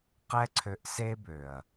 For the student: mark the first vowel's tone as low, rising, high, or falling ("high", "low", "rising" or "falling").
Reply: high